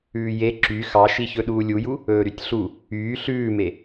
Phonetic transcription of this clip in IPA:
ʉː j e ǁ y x ɑ ʃ i ç ɵ ɗ uː lʲ u j u | ɵː ɾ y tʲ ɬ u | yː ɬ ʉː m e

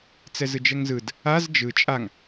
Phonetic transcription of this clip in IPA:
t͡s ɛ z ɯ d͡ʒ ɛ ŋ z ɯ d | a z d͡ʒ ɯ t͡ʃʼ a ŋ

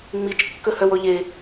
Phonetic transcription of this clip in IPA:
ŋ͡m i t͡ʃ kː ɵ h œ w ɔ ʎ e

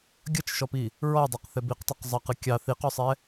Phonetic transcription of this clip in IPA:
ɡʲ ʌ t͡ʃ ʃ ɔ p i | ɹ ɔ dˤ ɑ q θ ɛ b i q tˤ ɛ q zˤ ɑ q ɨ kʲ ɑ θ i q ɔ sˤ ɛ

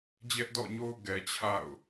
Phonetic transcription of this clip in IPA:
d͡ʑ ɛ˦ ʔ d ɔ̰˦˨ ɲ o˦ ʊ̯ ɡ ɛ˨ t͡ɕʰ a̰˦˨ ʊ̯

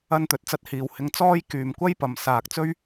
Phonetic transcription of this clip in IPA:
ɐ˧ n t̪ ɵ˨ t̚ t͡s ɐ˧ t̚ h iː˨ w h ɪ˧ ŋ t͡s ɔː˥ j k yː˨ m kʷ ɐ˥ j p ɐ˨ m s aː˨ k̚ t͡s ɵ˥ ɥ

